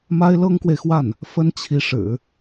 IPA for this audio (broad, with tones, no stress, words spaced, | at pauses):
ma˥ɪ̯lɤ˥ŋkwe˨ɪ̯xwa˥˩n | fə˥nt͡ɕʰi˧˥ ʂɻ̩˨˩˦